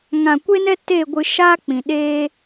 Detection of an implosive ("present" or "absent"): present